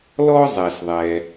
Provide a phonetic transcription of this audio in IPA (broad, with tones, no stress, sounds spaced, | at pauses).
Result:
l ɔ˥ zˤ ɛ˩ s ðˤ ɛ˩